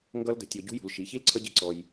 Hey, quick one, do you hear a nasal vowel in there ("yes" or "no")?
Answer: no